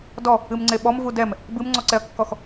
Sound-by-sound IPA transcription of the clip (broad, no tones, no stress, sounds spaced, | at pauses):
d ɔ | ɨ m ŋ͡ǀ e ɓ ɔ m v u d ɛ m | b ɨ m ŋ͡ǀ ɔ ǀ ɛ ɐ̯ kː ɔ x